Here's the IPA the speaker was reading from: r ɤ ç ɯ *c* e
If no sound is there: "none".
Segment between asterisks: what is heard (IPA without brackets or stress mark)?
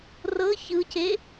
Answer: c